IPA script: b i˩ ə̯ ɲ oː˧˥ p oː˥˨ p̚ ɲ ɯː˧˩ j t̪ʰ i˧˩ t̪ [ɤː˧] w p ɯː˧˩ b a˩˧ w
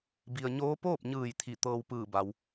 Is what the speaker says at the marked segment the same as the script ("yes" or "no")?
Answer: yes